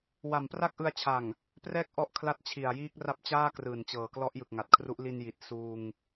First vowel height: low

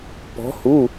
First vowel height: mid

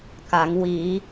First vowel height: low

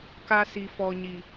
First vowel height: low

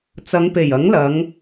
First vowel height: low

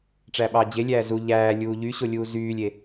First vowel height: low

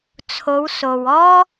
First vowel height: mid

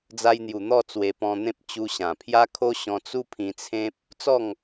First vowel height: low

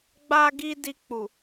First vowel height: low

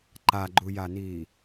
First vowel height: low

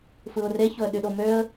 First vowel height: high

